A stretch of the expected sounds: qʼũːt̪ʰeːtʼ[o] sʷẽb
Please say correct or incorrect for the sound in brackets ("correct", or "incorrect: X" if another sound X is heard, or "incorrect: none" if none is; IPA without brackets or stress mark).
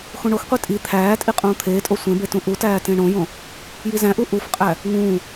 correct